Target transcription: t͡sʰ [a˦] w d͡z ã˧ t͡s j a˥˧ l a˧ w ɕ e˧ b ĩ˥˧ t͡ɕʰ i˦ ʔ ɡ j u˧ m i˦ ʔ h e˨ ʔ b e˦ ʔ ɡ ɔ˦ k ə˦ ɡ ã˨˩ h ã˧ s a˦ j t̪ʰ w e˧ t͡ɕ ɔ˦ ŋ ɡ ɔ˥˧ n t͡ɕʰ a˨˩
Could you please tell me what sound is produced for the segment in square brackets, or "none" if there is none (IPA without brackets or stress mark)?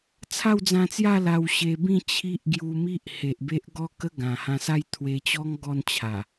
a˥˧